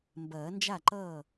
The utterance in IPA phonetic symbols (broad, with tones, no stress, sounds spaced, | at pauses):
m b ɐː˨˩˦ n d͡ʒ a˥˩ ǃ ʌː˥˩